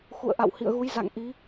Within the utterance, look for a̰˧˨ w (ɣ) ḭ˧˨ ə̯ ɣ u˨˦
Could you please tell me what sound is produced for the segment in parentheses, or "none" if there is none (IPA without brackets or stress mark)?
h